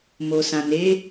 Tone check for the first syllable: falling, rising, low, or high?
low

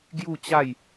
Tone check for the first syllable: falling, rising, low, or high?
falling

